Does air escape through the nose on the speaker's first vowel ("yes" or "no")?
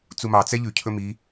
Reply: no